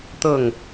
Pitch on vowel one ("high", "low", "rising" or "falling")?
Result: falling